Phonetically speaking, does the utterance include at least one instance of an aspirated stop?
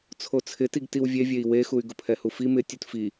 yes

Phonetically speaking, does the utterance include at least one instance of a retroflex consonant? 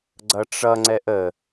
yes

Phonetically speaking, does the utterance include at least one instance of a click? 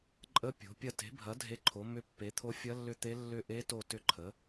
yes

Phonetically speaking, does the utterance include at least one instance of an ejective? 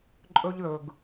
yes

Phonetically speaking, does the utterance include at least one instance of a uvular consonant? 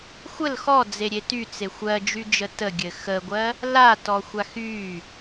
no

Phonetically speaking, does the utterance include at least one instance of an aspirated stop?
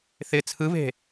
yes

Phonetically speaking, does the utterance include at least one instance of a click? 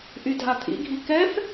no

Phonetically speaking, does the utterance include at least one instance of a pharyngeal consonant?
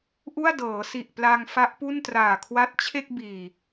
no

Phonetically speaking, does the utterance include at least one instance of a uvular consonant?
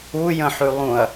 no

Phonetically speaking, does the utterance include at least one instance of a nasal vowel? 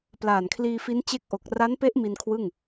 no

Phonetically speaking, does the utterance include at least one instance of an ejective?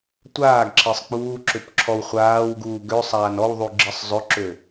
no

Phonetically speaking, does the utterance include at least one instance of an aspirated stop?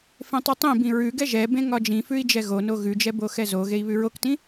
no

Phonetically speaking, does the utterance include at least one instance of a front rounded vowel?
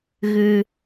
no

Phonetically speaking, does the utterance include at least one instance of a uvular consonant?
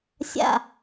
no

